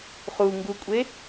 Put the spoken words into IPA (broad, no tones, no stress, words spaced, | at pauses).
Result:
χuŋɡukʷʼe